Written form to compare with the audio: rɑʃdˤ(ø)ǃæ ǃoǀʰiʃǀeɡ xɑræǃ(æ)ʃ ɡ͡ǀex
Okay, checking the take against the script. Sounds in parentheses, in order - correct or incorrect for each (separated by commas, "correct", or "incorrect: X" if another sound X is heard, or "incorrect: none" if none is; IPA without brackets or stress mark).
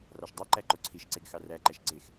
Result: correct, correct